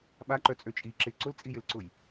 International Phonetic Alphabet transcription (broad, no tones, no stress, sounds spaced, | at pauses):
ɓ a ǃ œ t͡sʼ ø t͡ʃʼ i ǁ ɪ ǀ ʊ l t͡sʼ i j ɪ l ǀ ʊ j